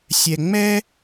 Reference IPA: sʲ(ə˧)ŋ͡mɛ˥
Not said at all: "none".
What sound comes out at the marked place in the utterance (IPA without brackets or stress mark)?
ɛ˧